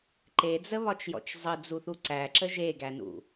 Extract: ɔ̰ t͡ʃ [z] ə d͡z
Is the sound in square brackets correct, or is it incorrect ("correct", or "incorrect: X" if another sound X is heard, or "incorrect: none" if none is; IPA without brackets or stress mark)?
incorrect: zˤ